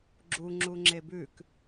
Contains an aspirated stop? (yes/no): no